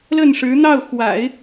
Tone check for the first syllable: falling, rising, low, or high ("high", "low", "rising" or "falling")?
falling